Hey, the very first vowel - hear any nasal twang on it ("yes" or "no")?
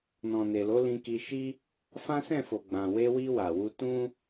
yes